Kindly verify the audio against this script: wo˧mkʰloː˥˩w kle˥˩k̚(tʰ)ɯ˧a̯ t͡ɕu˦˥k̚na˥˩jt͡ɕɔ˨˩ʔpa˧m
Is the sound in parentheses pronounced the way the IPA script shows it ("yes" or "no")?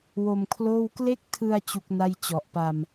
yes